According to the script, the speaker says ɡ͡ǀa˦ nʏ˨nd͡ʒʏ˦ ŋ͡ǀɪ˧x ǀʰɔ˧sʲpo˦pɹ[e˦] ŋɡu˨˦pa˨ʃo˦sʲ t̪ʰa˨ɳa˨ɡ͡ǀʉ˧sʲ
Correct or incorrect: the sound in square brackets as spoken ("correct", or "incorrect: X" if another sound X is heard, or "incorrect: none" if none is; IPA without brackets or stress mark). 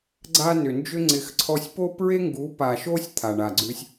correct